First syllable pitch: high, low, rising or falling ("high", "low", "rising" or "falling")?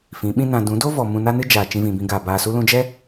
rising